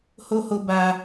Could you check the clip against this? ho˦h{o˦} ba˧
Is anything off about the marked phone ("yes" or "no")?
no